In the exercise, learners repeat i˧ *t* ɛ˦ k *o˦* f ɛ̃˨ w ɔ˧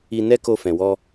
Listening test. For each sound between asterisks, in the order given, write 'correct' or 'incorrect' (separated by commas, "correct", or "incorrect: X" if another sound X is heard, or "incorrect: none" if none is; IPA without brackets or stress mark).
incorrect: n, incorrect: o˧